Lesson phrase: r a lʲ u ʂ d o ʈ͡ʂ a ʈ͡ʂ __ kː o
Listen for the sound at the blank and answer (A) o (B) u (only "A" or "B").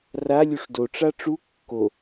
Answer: B